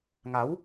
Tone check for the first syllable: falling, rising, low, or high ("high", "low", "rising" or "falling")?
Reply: rising